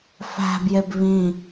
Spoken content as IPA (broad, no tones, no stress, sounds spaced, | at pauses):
f æ̤ b j e b β ĩ